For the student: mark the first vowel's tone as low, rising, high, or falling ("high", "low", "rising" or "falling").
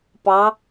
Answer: rising